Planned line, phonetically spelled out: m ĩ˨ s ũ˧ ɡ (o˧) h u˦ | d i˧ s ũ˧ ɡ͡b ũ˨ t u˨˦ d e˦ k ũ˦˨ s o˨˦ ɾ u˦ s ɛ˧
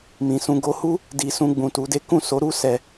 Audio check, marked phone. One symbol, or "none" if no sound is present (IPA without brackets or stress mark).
o˧